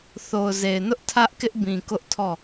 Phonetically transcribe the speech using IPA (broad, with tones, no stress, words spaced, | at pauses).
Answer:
θo˨ʊ̯ze˨ɪ̯nʊ˦ʔ tʰä˦ʔkɪ˦ʔbĩ˨ kʊ˦ʔtʰɔ˦˨